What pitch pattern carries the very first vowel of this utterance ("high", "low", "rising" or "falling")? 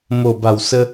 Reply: low